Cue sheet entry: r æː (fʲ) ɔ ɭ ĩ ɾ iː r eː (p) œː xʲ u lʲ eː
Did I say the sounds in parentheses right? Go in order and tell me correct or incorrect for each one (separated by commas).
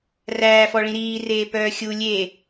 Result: incorrect, correct